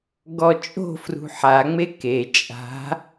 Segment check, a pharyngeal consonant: present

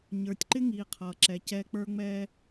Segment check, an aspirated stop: present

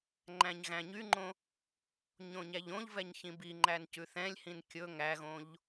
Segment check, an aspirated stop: absent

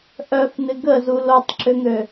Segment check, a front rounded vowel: present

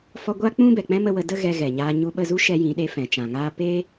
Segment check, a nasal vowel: present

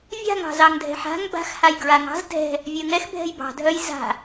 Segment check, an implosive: absent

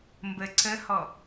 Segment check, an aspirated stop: absent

